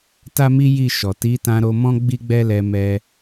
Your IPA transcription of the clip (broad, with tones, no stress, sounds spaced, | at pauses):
t a˦ m i˦ j i˦˨ ʃ ɔ˨ t i˨˦ t ã˧ ɾ o˧ m ɔ̃˦ ɡ͡b i˦ ɡ͡b ɛ˦ l ɛ˧ m ɛ˧